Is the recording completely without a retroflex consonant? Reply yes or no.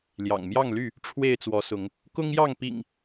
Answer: no